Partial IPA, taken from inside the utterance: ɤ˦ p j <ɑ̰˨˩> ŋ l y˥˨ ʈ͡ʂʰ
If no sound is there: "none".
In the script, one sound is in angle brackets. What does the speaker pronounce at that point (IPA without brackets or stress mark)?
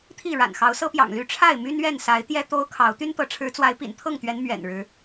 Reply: ɑ̰˨˩